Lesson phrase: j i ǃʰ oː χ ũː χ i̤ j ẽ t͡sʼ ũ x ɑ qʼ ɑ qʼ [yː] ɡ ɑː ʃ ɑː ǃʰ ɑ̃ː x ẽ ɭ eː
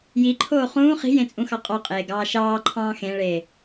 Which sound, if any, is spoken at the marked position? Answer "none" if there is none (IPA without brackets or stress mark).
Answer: eː